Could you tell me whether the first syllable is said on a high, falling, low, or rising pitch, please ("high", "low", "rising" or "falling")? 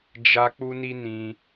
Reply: high